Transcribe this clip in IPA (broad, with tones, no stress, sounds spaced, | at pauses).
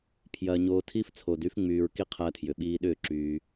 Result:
pʰ j ɐː˧ ɲ oː˧ tʰ iː˦ f t͡sʰ o˧ d y˦ f ŋ͡m yː˧ ɹ k i˦ qʰ ɐː˧ tʰ j ʏ˨ ɓ iː˧ ɗ ʏː˦˨ ǁ yː˦